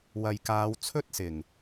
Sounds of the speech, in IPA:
wɐ˨jkaː˨˧wt͡sʰɵ˥t̚ sɪ˨˩ŋ

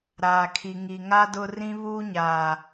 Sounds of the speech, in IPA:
ɾaː˨kʰi˨ ŋi˨ŋa˦ dʊ˦ rĩ˦βuː˦ɲaː˨

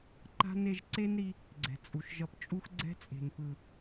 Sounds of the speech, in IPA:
ǃa̤˦n e˧ʒǀe˦nɾi˧ | ɡ͡ǀɛ̤˨t͡sʼu˨ʃʒʌ˧pt͡ʃʼu˦x ɡ͡ǀɛ̤˦t͡sʼe̤˨npɯ˨

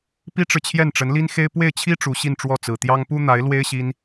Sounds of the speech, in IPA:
pi˥ʈ͡ʂɻ̩˨t͡ɕʰjɛ˥˩nʈ͡ʂə˧˥n li˥nxe˥ɪ̯ pwe˥˩ɪ̯t͡ɕʰi˥ ʈ͡ʂu˧˥ɕi˥˧nʈ͡ʂwɔ˥˩ t͡sɹ̩˨˩t̪jɑ˥ŋ pu˥n̪a˧˥ɪ̯ lwe˥ɪ̯ɕi˥n

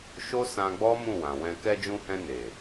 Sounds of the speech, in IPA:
ʃo˦sã˧ɡ͡bɔ˦ mũ˦˨wã˨wɛ̃˧ kɛ˧d͡ʒũ˧hɛ̃˧ne˨

